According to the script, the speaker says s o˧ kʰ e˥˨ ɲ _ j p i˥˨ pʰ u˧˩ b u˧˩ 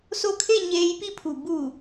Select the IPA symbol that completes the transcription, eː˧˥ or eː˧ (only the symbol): eː˧